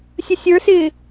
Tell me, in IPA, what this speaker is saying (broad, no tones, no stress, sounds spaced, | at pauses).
sʲ ə sʲ ə˞ s ɪː